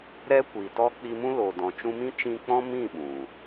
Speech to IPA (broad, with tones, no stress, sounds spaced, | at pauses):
ɾ ɛ˦ kʷ i˨ t ɔ˦ k͡p i˧ m ũ˦ l o˨ d ɔ̃˨ t͡ʃ ũ˧ m ĩ˦ t͡ʃ ĩ˧ k͡p ɔ̃˦ m ĩ˦˨ ɓ ũ˨